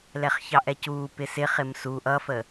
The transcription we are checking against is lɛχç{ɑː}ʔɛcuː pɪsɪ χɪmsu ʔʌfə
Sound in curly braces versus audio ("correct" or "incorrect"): incorrect